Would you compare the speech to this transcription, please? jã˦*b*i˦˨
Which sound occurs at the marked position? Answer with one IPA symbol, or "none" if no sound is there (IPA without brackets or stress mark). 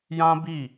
b